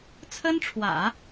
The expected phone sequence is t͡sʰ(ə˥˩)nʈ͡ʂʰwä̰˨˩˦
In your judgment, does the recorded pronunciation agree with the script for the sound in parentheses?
no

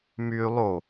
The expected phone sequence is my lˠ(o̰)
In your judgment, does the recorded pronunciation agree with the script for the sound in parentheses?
no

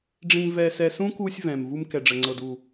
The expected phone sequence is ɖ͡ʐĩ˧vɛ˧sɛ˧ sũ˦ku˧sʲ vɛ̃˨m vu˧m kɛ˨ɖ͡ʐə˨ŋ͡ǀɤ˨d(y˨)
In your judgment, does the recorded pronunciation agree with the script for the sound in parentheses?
no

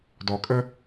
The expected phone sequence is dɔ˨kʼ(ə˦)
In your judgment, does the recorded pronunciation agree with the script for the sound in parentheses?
yes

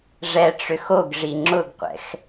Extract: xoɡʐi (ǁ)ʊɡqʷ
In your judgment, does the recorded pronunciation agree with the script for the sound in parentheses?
no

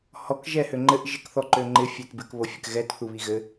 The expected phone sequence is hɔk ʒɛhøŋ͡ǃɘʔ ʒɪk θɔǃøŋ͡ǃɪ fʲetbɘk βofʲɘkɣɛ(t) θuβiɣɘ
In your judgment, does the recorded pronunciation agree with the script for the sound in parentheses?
yes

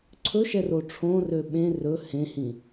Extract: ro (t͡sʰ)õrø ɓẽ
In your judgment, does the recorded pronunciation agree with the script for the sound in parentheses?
no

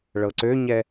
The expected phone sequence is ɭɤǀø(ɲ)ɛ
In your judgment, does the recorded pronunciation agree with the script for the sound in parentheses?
yes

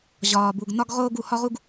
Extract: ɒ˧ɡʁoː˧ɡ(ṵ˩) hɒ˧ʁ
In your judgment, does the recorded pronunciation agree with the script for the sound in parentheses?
no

